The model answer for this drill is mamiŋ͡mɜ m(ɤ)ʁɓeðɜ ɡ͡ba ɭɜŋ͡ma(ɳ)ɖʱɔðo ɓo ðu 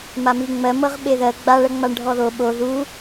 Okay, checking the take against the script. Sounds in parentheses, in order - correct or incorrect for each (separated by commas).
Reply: correct, correct